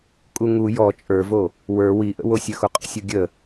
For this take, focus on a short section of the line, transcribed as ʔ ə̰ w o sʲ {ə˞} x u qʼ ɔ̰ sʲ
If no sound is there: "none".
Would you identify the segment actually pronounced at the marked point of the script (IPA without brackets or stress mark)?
ə